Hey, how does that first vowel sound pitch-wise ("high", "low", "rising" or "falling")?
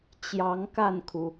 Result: rising